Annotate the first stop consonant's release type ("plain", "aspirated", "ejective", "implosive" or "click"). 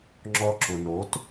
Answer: click